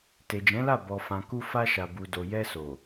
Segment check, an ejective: absent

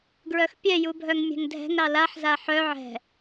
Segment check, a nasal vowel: absent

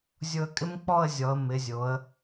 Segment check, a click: absent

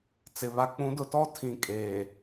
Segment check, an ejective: present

